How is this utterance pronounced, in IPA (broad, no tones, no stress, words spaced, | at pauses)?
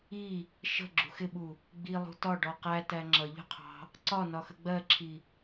i | ʃə̤ ɡ͡ǁṳxɪɓu | ɡ͡bilˠṳ tɒ ɖɔqætæ ŋ͡ǁʌʎṳ qʰɑ̤ | ǀɒ nɒxəɡ͡bɜǁʰi